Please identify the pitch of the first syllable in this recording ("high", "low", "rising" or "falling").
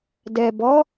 low